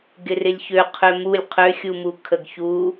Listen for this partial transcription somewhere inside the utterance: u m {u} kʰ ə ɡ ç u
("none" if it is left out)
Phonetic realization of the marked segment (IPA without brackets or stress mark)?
u